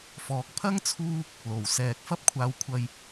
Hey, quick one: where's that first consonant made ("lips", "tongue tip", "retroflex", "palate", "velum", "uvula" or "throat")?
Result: lips